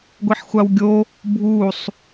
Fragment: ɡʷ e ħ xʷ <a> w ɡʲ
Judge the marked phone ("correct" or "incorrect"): correct